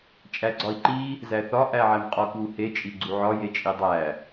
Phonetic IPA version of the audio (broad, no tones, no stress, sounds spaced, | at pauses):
t͡ʃʼ æ ɡ͡ǀ ɒ i̯ ǃ i | z æ θ ɒ ʔ æ ʕ æ m qʼ ɒ k w u h e t͡ʃʼ i ɡ͡ǀ u ʕ ɒ j e t͡ʃʼ i dˤ æ